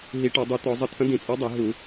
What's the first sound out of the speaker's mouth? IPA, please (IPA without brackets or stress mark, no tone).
ɦ